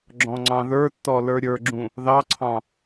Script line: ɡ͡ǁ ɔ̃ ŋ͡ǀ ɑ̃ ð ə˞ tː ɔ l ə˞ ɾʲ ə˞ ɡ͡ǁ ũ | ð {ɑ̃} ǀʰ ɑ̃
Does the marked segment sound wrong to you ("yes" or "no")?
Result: yes